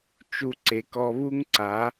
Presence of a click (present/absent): present